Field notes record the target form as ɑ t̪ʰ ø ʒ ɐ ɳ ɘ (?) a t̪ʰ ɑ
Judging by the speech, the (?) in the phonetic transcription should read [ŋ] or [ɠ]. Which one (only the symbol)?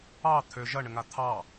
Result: ŋ